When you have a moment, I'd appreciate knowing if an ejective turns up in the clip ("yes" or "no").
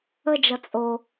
yes